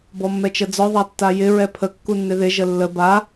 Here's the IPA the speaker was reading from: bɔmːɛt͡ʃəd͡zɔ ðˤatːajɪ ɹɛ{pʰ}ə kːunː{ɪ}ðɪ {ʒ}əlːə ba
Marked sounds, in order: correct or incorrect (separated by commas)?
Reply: correct, correct, correct